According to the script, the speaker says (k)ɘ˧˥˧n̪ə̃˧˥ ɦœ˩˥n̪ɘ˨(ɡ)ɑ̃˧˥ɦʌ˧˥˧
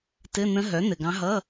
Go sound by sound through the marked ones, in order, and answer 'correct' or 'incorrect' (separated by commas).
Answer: incorrect, correct